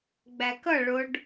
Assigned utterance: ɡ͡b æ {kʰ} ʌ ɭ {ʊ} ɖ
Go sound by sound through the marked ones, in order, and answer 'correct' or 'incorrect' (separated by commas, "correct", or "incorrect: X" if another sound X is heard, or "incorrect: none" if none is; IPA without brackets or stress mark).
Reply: incorrect: k, correct